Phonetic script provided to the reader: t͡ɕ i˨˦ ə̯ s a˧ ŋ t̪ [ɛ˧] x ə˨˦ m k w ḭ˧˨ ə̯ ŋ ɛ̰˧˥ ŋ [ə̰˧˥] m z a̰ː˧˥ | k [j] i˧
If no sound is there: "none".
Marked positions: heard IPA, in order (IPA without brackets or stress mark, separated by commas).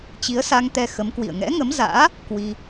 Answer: ɛ˧, ə˨˦, w